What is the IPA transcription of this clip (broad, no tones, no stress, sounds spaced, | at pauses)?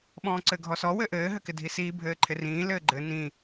ɓ ɔ̃ː ǀ ɘ ɡʱ ɔ s ɔ w ɘ ʔ ɘː ɦ ɘ k ɪ dʱ i s iː bʱ ɘː ǃʰ ɪ r ĩː l ɘː ɡ͡ǃ ɘ n ĩ